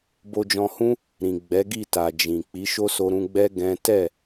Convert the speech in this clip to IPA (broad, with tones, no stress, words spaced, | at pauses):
bo˧d͡ʒɔ̃˧hũ˦ | ɾĩ˨ ɡ͡bɛ˨˦ɡi˦˨ta˨ d͡ʒĩ˨ k͡pi˨˦ʃo˦ so˧ɾũ˧ɡ͡bɛ˦ ɡɛ̃˦ tɛ˦˨